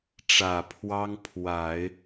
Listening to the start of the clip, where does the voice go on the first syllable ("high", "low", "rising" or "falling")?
low